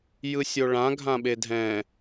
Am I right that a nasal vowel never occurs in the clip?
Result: no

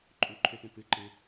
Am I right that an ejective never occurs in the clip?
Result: no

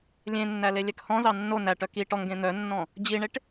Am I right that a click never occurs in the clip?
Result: yes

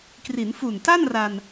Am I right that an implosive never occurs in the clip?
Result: yes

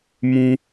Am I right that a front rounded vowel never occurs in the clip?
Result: yes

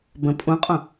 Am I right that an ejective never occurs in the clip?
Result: no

